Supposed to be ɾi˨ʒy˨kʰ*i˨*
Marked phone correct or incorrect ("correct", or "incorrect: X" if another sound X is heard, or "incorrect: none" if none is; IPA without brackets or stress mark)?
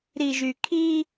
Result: incorrect: i˦